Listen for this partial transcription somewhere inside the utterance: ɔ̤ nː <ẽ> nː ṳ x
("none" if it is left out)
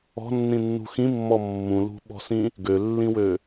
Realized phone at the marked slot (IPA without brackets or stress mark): ĩ